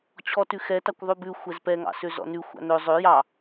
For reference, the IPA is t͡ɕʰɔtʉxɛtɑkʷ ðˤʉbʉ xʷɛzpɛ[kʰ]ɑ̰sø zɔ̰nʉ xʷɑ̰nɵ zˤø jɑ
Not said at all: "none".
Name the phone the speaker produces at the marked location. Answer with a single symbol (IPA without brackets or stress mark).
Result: ŋ